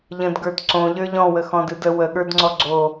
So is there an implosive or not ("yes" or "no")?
yes